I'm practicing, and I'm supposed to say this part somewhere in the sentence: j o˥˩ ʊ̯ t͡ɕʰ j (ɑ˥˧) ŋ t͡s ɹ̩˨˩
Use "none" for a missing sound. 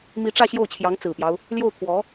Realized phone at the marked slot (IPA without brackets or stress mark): ɑ˧˥